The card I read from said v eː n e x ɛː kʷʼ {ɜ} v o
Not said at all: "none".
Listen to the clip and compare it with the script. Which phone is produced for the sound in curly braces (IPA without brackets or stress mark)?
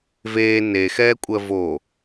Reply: ɜ